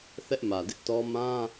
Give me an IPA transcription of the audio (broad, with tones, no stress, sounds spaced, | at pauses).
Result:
θ ɛ˦ ʔ m ä˨ d ɪ˦ ʔ t ɔ˦ m ã˦